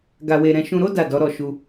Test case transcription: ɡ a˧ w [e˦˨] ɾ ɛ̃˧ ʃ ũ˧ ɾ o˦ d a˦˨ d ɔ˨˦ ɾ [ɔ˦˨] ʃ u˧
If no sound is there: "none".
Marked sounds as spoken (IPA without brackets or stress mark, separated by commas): e˧, ɔ˦˨